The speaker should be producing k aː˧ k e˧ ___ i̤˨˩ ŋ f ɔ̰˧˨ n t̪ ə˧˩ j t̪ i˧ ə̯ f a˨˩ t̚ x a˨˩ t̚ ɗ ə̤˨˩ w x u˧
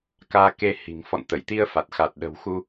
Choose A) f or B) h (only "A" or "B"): B